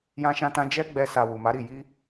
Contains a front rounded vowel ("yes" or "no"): no